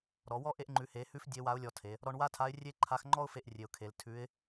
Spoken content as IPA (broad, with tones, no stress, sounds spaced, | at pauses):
ɾ ɔ˩˧ w ɔ˥ ʔ e˧ ʔ ŋ͡ǃ ʉ˩˧ h e˩˧ h ʉ˧˥ f dʲ e˧˥ w a˧˥ ʊ̯ lʲ ɔ˧ tʰ e˩˧ | ɾ ɔ˧ ɳ w a˥ tʰ a˧˥ ɪ̯ rʲ e˥ ǃʰ a˧˥ x ŋ͡ǃ ɔ˥ ʊ̯ f e˧ ʔ rʲ e˩ ʊ̯ kʰ e˩˧ l tʰ ʉ˧˥ ɪ̯